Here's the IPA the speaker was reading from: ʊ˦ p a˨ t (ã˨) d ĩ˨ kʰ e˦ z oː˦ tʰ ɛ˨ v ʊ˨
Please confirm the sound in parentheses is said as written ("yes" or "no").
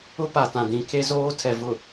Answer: yes